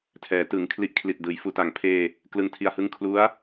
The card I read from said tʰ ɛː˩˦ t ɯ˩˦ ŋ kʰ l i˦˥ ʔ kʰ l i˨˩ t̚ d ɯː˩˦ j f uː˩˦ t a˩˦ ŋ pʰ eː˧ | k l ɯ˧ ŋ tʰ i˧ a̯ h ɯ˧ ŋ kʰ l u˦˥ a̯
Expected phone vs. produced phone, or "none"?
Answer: none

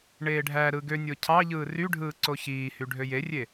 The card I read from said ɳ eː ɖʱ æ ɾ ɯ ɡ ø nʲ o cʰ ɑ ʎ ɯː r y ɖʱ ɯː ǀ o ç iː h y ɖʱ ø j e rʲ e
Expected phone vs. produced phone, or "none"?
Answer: none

